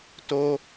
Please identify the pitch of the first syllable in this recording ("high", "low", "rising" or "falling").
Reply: high